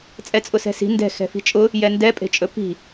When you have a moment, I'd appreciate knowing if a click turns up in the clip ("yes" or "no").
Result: no